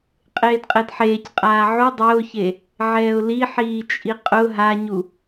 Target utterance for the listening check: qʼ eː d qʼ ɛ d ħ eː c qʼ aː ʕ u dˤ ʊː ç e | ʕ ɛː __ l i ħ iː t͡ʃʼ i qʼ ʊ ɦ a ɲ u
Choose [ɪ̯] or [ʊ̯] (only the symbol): ʊ̯